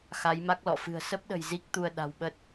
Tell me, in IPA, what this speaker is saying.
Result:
x a˨˦ j m a˦˥ k̚ l ɔ̰˧˨ f ɨ̤˨˩ ə̯ s ə˦˥ p̚ ɗ ə̤˨˩ j z i˦˥ k̚ t̪ u˧ ə̯ ɗ a̤˨˩ w ɓ ə˦˥ t̚

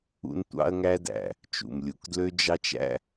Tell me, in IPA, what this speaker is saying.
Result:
ṵ˧ n tʷ ɑ̰˧ ɐ̯ ŋ æ˧ d æ̰˩ | t͡ʃ ṵ˩ m lʲ u˩ k d l ø˧ d͡ʒ ɑ˧ t͡ʃ æ̰˧

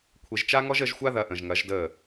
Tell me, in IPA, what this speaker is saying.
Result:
kʷʰ e˨ ʒ t͡ʃ a˦ ŋ ɔ˦ ʒ əː˧ ʒ xʷ a˧ ð ɐ˨ ʔ ə̃˨ ʒ ŋ ɐ˨˦ ʒ d əː˦˨

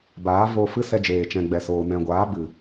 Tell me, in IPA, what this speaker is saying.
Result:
b aː˨˦ v oː˧ f ɨ˦ s ɛ˧ d͡ʒ eː˨ t͡ʃ ɛ̃˨ ɡ͡b ɛ˨ s oː˨ n ɛ̃˨ ɡʷ aː˨˦ b ɨ˨

